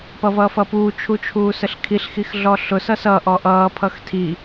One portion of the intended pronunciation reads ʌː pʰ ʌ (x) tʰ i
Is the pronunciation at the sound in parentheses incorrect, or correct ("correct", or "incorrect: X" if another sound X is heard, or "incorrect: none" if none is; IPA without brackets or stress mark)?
correct